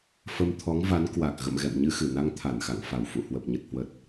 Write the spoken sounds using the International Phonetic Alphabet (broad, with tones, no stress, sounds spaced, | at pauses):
f ə˧ m t̪ʰ ɔ˨˦ ŋ v a˨˦ n k w a˨˩ k̚ ɣ ə̰˧˨ m ɣ ɛ̰˧˨ m ɲ ɨ˧ x ɨ˧˩ n a˧ ŋ t̪ʰ a˧˩ n x a̰˧˨ ŋ f a˧˩ w f ṵ˧˨ h w ə˨˩ p̚ ɲ ə˨˩ t̚ h w ə˨˩ t̚